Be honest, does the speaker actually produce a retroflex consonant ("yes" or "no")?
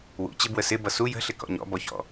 no